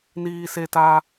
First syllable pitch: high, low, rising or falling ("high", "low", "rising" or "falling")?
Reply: high